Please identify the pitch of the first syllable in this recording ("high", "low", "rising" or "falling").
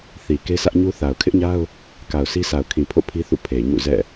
low